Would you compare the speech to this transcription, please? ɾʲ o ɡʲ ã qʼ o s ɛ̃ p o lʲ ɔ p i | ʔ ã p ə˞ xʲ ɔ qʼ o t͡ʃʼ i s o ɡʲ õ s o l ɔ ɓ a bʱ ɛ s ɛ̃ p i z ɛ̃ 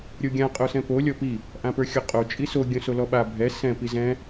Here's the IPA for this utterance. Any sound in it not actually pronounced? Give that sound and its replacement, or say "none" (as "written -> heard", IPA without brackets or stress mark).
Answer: none